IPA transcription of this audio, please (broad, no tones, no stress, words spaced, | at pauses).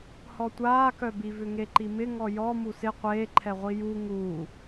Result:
hɔtʷaːkœbi vʏŋeǃimɪ ŋɔjɔ musɪ qʷeːǃʰɛʁʷi ju ŋuː